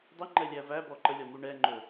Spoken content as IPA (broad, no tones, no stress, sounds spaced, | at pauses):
dˤ ə ŋ͡ǃ ɛ lʲ æ v æ b ɔ ǃ ə lʲ ɒ m u ɳ ɛ ŋ͡ǃ ɵ